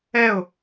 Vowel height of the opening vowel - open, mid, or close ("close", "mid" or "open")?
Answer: mid